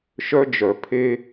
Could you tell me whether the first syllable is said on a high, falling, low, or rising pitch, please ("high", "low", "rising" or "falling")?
high